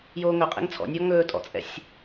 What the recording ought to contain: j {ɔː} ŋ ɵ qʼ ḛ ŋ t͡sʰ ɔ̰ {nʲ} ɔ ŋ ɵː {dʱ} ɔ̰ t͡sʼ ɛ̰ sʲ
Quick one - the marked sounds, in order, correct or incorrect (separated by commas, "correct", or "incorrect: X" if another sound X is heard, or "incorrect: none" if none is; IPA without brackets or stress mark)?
incorrect: oː, correct, incorrect: tʼ